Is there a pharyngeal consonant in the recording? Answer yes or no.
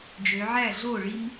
yes